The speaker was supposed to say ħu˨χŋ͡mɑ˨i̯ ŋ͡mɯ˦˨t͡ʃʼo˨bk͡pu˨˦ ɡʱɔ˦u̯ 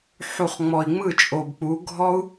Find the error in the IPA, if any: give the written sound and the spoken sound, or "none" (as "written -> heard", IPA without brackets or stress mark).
ɑ˨ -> ɔ˨